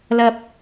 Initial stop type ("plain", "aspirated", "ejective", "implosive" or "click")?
plain